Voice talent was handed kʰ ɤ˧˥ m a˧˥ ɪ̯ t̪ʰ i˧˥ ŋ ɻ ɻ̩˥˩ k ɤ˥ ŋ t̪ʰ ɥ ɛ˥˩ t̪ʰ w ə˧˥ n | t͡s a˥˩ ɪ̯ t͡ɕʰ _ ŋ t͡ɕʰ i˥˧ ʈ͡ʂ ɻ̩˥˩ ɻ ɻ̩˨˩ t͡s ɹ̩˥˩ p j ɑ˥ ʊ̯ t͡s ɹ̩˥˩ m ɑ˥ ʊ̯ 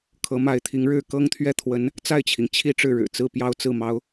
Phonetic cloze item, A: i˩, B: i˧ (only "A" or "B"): A